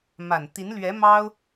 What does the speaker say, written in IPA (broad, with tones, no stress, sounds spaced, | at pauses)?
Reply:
m a˨˩ n t̪ i˧˥ n l ɥ ɛ˧˥ m ɑ˥ ʊ̯